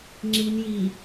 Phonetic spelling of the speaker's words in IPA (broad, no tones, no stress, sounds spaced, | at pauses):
ŋ͡ǁ i n j i